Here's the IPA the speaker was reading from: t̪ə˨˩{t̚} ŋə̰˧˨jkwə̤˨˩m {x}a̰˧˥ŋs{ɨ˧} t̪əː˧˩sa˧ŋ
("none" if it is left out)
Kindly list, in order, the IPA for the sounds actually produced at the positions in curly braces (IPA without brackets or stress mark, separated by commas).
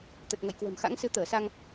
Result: t̚, x, ɨ˧